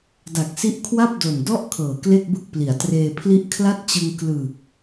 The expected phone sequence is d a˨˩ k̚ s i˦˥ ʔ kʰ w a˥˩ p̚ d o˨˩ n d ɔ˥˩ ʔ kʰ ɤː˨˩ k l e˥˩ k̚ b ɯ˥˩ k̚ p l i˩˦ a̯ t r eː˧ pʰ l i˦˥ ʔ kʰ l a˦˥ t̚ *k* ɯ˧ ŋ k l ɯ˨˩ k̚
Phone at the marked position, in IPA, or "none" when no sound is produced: t͡ɕ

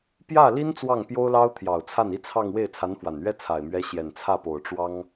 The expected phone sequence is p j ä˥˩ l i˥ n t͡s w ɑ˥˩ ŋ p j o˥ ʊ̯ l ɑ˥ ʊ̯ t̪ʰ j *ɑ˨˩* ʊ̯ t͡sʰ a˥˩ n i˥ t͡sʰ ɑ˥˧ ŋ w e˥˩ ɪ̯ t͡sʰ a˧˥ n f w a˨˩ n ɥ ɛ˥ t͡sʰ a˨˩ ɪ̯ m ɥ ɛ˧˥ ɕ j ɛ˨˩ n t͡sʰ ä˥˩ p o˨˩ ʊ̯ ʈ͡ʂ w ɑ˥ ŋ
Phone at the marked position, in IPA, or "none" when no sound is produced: ɑ˨˩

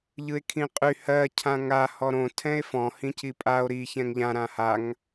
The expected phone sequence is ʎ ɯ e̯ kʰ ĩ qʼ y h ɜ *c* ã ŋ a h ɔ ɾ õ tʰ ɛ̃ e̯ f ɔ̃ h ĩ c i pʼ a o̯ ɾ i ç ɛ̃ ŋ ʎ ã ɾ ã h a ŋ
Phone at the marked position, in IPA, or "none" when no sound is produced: cʰ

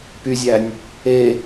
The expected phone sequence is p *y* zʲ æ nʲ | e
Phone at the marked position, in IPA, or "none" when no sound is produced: y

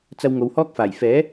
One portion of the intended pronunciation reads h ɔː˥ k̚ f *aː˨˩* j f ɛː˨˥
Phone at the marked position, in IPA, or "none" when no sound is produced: aː˨˩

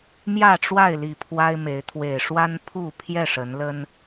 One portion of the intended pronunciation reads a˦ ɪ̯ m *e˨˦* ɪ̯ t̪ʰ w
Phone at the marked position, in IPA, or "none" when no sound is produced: e˨˦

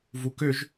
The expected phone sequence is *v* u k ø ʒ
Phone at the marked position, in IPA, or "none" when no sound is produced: v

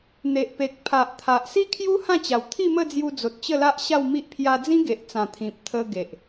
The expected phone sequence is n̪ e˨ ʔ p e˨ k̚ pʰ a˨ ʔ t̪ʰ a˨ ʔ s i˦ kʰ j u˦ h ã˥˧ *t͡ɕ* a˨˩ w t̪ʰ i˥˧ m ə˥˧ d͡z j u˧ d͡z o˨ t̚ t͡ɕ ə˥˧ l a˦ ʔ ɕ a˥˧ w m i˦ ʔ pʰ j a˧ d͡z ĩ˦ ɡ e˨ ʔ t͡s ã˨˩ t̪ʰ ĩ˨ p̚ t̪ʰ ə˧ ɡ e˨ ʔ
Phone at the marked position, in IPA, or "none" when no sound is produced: t͡ɕ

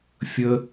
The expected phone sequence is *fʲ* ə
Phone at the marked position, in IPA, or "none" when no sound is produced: fʲ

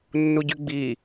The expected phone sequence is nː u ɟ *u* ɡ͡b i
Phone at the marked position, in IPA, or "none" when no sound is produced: y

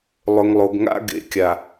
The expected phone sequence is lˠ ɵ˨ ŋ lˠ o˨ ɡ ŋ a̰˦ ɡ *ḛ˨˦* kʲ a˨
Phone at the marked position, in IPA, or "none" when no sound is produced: ḛ˨˦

